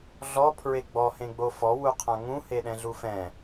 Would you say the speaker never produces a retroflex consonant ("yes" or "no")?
yes